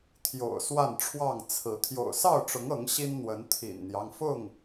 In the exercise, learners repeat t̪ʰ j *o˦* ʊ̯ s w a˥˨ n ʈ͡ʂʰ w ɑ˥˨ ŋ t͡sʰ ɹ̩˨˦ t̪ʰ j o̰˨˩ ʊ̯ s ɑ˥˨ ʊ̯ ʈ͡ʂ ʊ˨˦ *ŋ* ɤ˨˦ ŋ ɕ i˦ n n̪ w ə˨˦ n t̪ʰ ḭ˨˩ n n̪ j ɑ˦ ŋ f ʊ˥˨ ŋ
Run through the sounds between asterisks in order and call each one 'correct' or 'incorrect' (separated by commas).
incorrect, correct